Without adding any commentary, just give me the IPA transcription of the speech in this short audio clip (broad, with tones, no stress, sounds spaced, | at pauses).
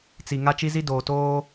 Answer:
t͡s i˨ ŋ a˦ t͡ʃ i˦ z i˦ d oː˨ t oː˦